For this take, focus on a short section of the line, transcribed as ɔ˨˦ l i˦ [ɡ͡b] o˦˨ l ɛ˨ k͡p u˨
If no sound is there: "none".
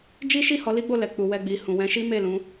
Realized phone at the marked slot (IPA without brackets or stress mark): ɡ͡b